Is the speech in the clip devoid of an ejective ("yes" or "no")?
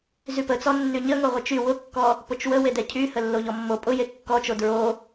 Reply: no